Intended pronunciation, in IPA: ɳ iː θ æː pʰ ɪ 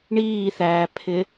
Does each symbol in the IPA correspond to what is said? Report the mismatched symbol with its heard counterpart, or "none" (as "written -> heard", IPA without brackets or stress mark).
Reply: none